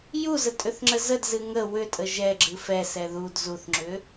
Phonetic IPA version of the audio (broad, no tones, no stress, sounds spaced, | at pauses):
j u z ə tʼ ʏ θ ŋ͡ǁ ə z ə d z ɨ ŋ ə w ʏ tʼ ə ʒ ɛ ɡ͡ǁ ɨ f ɛ s ɛ ð u d z u θ ŋ͡ǁ ʏ